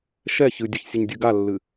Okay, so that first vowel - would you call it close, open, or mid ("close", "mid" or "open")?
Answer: mid